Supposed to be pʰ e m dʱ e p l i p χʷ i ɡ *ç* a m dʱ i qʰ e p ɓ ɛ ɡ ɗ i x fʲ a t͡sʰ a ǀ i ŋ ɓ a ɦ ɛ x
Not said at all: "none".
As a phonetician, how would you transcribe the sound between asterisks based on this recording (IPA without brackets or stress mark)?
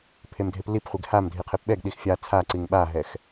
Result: h